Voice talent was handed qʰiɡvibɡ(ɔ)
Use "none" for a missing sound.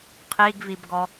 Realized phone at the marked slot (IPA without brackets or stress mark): ɔ